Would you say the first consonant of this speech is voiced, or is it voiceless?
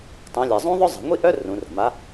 voiceless